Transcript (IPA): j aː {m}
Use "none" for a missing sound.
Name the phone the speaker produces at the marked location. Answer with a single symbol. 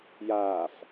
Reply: f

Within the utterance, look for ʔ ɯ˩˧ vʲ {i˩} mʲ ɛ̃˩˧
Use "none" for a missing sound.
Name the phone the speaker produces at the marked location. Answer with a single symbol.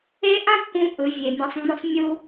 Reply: e˩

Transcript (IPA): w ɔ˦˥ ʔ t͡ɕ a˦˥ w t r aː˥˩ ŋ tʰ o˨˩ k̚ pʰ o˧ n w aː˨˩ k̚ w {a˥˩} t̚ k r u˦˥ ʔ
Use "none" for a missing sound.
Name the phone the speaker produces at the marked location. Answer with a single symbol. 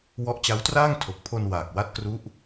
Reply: a˦˥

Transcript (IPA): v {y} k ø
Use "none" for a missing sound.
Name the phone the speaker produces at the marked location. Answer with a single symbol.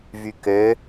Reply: y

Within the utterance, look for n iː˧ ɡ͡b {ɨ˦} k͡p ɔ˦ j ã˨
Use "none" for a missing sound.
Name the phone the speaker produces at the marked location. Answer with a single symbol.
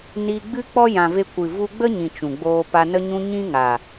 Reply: ɨ˦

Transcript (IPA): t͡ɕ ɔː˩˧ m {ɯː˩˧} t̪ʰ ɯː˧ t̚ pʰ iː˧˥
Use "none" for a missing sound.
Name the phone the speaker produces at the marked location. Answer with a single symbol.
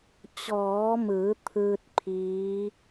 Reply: ɯː˩˧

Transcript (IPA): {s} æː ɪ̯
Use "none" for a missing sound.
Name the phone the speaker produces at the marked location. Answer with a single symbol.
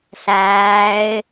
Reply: ɬ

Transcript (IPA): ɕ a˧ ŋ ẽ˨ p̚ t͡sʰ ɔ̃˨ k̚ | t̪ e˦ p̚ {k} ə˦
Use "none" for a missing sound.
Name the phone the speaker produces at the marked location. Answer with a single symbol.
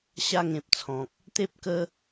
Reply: k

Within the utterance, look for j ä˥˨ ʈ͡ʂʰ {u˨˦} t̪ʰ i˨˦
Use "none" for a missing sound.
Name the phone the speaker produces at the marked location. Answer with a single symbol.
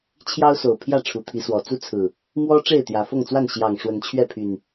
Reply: u˨˩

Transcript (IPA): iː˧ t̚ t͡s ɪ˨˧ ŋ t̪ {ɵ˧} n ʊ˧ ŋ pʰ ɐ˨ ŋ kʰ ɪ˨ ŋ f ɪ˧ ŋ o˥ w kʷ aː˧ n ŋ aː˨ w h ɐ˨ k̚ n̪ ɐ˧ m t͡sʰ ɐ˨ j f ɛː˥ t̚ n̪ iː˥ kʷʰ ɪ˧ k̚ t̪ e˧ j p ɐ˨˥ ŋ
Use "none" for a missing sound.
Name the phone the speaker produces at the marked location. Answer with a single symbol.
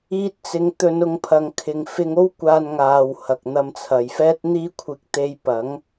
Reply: ɵ˧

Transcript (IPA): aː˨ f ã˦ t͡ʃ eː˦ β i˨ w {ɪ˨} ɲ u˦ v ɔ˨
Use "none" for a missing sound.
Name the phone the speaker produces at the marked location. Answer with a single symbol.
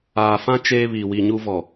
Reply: i˨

